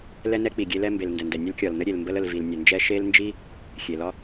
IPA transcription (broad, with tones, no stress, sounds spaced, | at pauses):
l ɛ˥ n ɛ˥ k͡p i˩ ɡʲ e˥ l ɛ˥ m b e˩ l n d ɛ˩ n d ɛ˩ nʲ ə˥ l kʲ ɒ˩ l n ə˥ ɾʲ e˩ l m b ə˥ l ə˩ l v i˩ l nʲ ə˩ n d͡ʒ ɛ˥ ʃ e˥ l n d͡ʒ i˥ | xʲ e˩ l ɒ˥